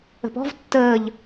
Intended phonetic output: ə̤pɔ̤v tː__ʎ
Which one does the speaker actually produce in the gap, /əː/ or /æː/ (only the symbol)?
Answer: əː